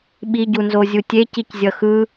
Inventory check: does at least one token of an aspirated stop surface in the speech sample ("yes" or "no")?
no